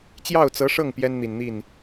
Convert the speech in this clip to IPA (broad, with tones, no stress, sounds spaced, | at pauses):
t͡ɕ j ɑ˥˩ ʊ̯ t͡s ɤ˧˥ ʂ ɤ˥˩ ŋ p j ɛ˥ n n̪ i˨˩ n n̪ i˥˩ n